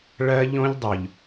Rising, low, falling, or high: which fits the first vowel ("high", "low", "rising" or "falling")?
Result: high